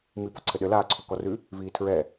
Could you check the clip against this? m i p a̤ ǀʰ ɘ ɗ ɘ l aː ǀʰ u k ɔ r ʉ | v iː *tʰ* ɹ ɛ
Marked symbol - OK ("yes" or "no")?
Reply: yes